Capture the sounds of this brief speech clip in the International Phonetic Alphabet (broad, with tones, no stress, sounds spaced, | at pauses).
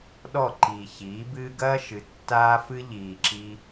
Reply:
ɗ ɔ˦˨ ǃ iː˨ ç iː˨˦ b ɨː˦ ɡ ɐː˦ ʃ ɨ˨˦ tː aː˦ f ɨ˦ ʎ iː˨ ǁ i˧